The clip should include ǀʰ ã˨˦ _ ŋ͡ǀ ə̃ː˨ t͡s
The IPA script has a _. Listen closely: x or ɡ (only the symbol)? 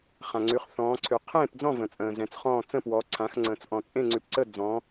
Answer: x